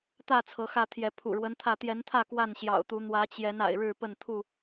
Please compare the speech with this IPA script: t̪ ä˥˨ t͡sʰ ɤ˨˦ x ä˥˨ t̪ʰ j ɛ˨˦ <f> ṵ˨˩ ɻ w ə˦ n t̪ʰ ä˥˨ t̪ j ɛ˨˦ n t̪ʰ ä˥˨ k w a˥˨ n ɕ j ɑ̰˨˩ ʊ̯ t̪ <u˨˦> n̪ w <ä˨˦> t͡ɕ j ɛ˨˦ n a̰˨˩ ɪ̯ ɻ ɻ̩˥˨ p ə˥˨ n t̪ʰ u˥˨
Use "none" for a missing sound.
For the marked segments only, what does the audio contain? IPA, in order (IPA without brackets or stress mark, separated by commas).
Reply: pʰ, u˨˦, ä˨˦